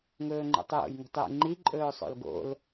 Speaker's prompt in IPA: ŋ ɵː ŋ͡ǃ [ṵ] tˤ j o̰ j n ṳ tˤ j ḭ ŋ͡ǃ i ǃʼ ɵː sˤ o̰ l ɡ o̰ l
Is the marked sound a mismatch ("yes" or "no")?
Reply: no